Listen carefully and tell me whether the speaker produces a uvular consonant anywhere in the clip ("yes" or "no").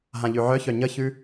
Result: no